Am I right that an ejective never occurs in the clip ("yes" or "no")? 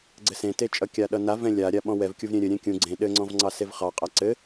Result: no